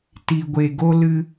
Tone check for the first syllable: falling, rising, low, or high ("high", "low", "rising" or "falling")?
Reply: low